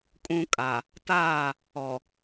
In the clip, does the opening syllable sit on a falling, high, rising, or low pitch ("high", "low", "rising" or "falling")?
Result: high